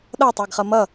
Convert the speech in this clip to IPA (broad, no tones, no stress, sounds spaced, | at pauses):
ɗ ʌ tˤ ɛ ɡ χ ʌ m ʌ